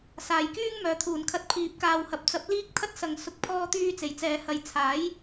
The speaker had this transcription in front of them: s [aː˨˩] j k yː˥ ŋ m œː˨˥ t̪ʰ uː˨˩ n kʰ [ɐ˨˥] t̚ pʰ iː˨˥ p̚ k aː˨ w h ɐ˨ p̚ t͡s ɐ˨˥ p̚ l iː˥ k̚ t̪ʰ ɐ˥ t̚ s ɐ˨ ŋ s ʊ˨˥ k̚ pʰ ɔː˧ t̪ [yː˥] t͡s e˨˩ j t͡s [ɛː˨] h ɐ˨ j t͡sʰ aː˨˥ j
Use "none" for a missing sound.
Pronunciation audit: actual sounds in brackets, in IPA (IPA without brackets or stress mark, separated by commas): aː˨˩, ɐ˧, yː˧, ɛː˨